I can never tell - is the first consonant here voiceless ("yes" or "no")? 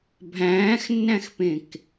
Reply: no